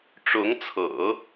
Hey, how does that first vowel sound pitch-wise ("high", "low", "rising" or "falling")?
rising